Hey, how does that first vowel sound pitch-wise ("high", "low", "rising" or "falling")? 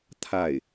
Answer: falling